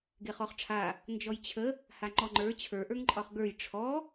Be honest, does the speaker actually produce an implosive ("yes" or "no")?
no